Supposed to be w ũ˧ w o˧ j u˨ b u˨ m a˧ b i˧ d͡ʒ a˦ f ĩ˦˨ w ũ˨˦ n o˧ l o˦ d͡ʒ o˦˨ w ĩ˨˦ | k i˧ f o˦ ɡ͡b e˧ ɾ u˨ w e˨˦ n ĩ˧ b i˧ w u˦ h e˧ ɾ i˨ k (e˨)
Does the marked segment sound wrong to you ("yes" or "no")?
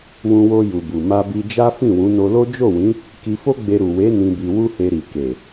no